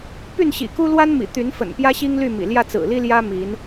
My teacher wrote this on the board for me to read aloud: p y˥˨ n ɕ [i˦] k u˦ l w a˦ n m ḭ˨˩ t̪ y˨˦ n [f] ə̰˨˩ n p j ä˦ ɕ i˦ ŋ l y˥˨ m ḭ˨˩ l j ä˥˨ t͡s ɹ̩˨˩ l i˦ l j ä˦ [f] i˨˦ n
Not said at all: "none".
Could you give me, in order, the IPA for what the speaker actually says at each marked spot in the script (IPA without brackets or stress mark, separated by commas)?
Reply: ḭ˨˩, f, m